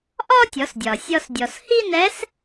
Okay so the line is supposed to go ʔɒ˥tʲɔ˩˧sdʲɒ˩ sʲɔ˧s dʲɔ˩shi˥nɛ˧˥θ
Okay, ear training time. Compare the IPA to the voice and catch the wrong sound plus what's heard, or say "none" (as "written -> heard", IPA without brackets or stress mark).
θ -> s